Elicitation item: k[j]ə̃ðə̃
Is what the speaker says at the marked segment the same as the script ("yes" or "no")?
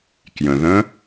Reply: yes